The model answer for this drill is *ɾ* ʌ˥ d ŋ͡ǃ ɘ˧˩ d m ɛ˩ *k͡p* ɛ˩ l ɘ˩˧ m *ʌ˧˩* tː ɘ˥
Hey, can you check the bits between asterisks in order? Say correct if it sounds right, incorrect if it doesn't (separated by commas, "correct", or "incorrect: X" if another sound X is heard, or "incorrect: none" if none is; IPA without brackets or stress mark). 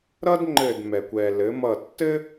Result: correct, incorrect: kʷ, correct